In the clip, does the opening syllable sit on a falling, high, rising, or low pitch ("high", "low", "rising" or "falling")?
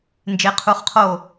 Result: rising